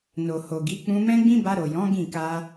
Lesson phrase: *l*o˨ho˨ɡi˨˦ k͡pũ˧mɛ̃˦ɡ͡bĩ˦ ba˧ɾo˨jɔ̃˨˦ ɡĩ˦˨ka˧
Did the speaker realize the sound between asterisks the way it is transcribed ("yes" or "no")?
no